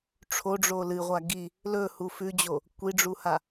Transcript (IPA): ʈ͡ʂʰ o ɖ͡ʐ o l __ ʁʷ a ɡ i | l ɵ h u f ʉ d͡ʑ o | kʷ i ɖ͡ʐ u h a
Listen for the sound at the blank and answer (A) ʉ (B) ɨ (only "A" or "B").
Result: B